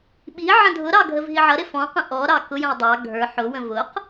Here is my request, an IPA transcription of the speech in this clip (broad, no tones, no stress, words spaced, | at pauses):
ɓi ʕə̃dʱʊɾɑ ɡʱəvɦiʕʌɾɪ fɔ̃qə̃ ʔɔ ɾɑkʊjə̃j dˤɑ ɡʱə˞ ħʊwə̃ vʊq